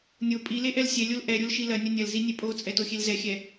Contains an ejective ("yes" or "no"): yes